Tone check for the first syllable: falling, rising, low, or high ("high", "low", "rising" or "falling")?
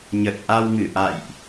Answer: low